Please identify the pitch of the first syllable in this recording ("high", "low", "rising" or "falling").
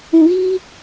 low